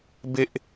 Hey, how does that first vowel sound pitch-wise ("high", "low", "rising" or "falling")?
high